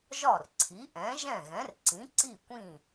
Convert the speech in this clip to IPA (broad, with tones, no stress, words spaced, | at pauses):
ʒɒ˥˩r ǀʰi˩˥ʔɛ̃˩˥ ʒɛ̃˥˩ɣɛ̃˩˥rǀĩ˩˥ ǀi˥˩kʷĩ˥˩